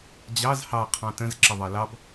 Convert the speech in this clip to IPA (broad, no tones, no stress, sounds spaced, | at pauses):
d͡ʑ ɑ z h ɑ qʰ ɑ̃ t ə̃ z ǁ ɪ ðˤ ɑ l ɑ b